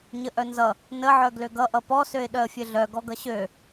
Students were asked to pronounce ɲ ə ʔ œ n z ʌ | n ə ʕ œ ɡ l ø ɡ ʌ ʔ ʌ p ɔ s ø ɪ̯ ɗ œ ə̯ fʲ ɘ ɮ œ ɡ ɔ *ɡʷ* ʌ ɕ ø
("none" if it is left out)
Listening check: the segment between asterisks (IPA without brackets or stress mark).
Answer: ɡ